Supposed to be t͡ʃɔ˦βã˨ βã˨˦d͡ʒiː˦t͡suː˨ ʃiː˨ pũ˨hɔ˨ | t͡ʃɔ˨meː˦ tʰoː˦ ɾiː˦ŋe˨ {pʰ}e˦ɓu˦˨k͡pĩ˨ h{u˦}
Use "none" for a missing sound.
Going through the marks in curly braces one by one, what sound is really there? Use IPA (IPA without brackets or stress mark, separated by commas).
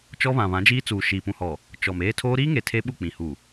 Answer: tʰ, u˨